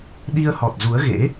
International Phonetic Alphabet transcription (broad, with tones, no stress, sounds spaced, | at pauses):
ɗ i˧ ə̯ h ɔ˨˩ t̚ z u˨˦ ə̯ ɣ ḛ˧˥